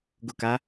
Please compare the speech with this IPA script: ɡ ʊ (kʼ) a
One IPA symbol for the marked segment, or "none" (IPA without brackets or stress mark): k